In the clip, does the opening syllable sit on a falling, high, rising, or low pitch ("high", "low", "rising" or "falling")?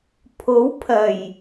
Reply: rising